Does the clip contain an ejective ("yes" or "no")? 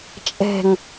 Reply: yes